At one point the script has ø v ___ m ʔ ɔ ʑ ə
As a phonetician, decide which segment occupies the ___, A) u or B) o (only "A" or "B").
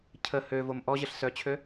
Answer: B